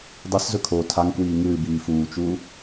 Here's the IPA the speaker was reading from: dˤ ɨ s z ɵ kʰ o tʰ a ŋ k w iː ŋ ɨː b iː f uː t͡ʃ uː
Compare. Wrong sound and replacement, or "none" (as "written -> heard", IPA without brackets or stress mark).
none